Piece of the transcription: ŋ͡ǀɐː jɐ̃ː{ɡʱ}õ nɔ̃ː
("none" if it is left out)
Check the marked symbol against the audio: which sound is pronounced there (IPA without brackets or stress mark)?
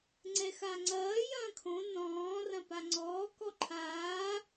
kʰ